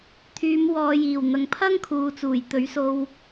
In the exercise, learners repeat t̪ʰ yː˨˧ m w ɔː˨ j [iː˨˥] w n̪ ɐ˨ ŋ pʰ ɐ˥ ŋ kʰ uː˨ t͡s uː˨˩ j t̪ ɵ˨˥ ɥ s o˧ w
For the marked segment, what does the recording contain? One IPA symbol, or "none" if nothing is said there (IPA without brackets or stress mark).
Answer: iː˨˩